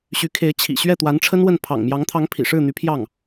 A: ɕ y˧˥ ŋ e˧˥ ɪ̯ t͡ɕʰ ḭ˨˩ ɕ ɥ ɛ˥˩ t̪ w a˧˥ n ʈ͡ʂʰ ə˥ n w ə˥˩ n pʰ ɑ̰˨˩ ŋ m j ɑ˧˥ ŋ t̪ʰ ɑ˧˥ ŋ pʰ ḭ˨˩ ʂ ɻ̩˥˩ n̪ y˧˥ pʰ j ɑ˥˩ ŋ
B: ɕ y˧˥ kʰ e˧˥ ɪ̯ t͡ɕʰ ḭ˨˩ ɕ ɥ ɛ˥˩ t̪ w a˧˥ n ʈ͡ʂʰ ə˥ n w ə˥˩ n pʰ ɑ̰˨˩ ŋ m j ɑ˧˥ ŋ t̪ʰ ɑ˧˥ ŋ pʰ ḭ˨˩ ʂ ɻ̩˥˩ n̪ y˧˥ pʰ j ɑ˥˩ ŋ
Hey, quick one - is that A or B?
B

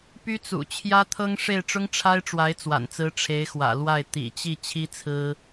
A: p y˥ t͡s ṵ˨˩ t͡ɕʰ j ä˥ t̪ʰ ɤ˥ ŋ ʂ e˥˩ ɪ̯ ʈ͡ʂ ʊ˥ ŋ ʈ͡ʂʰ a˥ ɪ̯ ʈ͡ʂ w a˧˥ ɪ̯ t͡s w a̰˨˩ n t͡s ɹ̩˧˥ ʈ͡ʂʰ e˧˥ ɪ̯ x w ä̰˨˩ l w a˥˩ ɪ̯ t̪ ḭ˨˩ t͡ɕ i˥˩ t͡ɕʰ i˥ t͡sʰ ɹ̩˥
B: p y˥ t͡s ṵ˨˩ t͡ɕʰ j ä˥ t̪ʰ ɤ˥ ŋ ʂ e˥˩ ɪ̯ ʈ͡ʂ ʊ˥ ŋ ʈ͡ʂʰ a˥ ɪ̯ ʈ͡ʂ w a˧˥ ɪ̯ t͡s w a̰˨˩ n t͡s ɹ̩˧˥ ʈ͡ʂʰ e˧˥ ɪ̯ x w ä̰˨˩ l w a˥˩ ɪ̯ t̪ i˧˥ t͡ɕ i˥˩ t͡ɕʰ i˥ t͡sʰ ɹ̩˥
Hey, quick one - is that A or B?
A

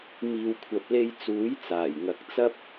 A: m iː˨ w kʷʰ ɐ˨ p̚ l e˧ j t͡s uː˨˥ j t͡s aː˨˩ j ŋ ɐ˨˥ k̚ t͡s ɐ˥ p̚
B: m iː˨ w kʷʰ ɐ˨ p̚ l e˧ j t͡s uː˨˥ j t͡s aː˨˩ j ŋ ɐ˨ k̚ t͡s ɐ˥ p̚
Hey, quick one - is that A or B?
A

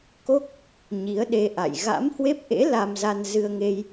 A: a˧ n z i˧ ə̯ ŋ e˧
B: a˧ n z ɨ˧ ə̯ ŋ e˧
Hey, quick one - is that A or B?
B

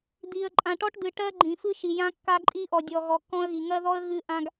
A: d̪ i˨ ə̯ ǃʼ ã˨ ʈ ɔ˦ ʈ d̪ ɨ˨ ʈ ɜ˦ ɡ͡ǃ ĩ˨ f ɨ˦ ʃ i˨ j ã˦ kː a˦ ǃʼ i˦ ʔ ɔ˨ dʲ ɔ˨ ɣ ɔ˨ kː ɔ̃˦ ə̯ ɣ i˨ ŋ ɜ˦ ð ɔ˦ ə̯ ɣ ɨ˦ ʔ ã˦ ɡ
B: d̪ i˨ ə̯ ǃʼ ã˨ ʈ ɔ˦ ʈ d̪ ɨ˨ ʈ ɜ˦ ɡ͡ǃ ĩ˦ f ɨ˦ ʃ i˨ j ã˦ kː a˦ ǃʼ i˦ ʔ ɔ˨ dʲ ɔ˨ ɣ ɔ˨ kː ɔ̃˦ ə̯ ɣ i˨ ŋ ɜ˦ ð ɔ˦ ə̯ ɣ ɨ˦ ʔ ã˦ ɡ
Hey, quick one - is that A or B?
A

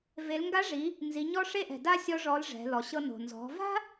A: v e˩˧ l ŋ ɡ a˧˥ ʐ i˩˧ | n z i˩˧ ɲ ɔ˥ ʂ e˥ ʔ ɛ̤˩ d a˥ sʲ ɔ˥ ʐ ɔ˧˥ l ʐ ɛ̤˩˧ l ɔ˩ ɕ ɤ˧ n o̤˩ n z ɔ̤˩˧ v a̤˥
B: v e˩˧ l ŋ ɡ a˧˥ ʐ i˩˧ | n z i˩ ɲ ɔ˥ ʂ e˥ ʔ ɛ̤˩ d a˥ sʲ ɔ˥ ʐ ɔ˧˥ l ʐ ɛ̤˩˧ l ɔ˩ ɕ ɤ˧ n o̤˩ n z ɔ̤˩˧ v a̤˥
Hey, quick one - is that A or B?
A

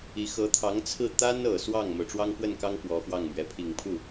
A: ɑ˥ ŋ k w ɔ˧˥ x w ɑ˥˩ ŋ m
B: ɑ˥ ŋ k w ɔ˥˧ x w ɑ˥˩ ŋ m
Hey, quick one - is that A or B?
A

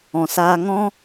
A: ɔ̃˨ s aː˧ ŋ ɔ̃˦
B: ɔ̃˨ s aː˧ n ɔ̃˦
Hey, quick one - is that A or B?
A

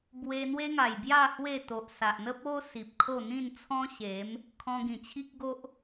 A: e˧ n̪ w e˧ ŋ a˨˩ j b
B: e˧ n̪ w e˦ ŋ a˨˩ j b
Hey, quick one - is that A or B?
B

